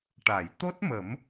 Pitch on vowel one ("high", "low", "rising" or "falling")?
low